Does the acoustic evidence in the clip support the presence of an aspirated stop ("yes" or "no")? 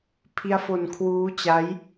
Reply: yes